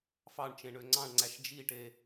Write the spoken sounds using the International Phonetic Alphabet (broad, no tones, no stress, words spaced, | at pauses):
fɑɳt͡ʃẽ ɳøŋ͡ǀɑ̃ɳŋ͡ǀæʃ d͡ʒiʈe